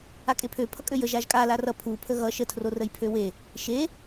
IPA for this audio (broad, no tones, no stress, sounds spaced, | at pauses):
a kʼ e pʰ ø pʰ ʌ kʼ ø j ə ʒ a ʒ kʼ a l a r ʌ pʰ u pʰ ə ɣ ʌ ʃ ə tʰ r o r ə j pʰ ø w e | ʃ e